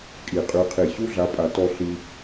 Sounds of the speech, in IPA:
kʼi˨˩˦ qʼy˨˦qʰi˧˩ ɕu˦ɮa˨˦pʼa˨˩˦ tɔ˦ ɬi˦

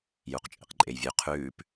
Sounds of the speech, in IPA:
juqt͡ʃʼḛqǃʼejvʲʉ qʰʉːp

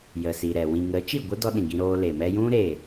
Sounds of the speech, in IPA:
jə˨siː˨ɾɛ˨ wĩ˨ŋə˨˦t͡ʃi˦˨ɡʷə˦ dɔ˦ɗĩ˨ɡĩ˧ ɾoː˧ le˨mɛ˧jũ˦ ɾeː˦˨

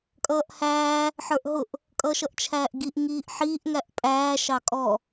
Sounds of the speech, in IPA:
kʼʌːʔhæː | ħə˞ʔɦʊʔ | kʼʌʃʌʔt͡ʃʰæːʔɡiʔ ŋiːʔħiːʔ ŋæʔpʼæː ʃɑkʼɔ

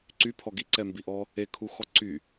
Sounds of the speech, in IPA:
ǀypʰɔ ɡiǀɛmbiʔɔ | ekʰuxɔ ǀy

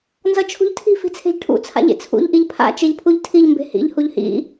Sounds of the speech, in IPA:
nzʌt͡ʃʰṳʎtʰi̤ fi̤t͡sʰe̤ʎʈʰṵ t͡sʰa̰ʎḛt͡sʰṵʎ ʔiʎpʰa̰ t͡ʃeʎpʰuʎtʰiʎ mbe̤hḭʎ huʎhḭ

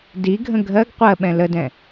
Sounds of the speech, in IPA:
diɡʱə̃ ɡʱɜɡ qʷɜɓɛ̃ lədɛ̃

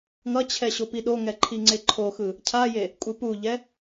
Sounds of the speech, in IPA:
ŋʌt͡ɕʰɛ ɕopiɗoŋɛ ǃʰiŋ͡ǀeǃʰoxɯ | cʰaje | kʷʼɯpuʎɛ

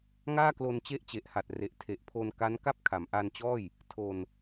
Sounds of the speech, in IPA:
ŋaː˥˩klo˧nt͡ɕe˦˥ʔ t͡ɕe˨˩ʔha˨˩t̚re˨˩ʔ tʰe˨˩ʔpʰo˧nka˦˥n ka˥˩p̚kʰa˩˦mʔa˧nt͡ɕɔː˥˩j | tʰo˧n

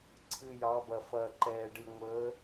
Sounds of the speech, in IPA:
ǀʰɨ˩ jɑ˩˧bɐ˩ fɐː˩ǃɛː˩ɖɨ˩ ŋʷəː˩˧

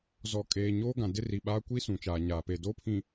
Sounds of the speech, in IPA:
zɔ˨kʼeː˨ɲoː˦ ɡã˨dɪ˦ri˨ɓaː˦ kʷi˦ sũ˨t͡ʃaː˨ɲaː˨ pe˨doː˦pʰĩ˨

